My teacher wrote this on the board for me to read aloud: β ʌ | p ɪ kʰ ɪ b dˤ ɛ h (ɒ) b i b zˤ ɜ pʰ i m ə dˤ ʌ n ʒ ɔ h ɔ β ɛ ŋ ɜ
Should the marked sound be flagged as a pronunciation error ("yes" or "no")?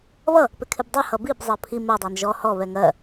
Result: yes